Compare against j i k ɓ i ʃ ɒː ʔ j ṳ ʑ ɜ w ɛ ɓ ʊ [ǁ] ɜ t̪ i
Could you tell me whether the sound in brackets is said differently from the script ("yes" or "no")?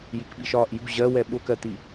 yes